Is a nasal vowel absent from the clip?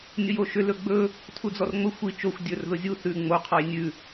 yes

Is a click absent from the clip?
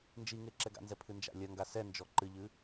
no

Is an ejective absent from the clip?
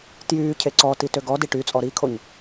no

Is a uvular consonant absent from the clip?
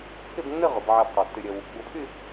no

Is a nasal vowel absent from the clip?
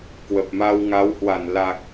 yes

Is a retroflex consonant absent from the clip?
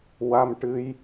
no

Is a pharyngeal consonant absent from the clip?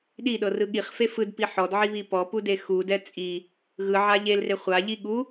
no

